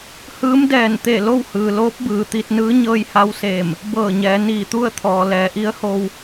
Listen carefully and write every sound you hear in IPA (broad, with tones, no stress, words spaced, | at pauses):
hɯː˧˥mdɛː˧˩n t̪e˧˩lo˥˨whɯː˩ loː˧˥p̚bɯː˩t̪i˧t̚nɯː˧˥ ɲɤː˧jha˧wseː˧˩m | bɤː˧˩ɲɛː˩˧ niː˧˩t̪u˥˨ə̯ t̪ʰɔː˩ lɛː˩˧ʔi˧˥ə̯ho˧w